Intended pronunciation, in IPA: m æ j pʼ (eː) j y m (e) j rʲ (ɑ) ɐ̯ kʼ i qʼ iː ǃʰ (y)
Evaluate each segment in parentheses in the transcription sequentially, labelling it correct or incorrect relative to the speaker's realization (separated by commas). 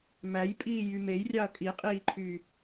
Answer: incorrect, correct, correct, correct